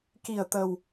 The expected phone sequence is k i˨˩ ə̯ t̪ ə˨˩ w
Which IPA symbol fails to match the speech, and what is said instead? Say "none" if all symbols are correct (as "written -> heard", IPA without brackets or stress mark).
none